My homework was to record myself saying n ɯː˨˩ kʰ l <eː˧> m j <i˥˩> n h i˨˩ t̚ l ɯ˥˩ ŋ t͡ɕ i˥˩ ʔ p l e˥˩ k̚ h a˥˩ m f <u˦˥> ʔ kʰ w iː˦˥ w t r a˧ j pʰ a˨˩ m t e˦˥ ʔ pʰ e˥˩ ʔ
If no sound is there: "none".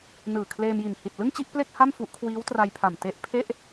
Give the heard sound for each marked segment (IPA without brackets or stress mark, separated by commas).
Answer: eː˧, i˨˩, u˦˥